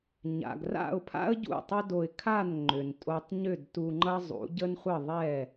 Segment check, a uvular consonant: present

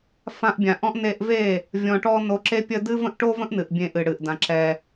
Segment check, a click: present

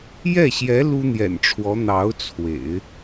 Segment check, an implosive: absent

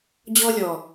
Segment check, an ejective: absent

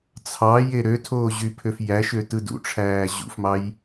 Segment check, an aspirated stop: present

